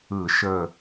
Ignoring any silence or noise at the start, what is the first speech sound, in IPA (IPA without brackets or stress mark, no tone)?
ɯ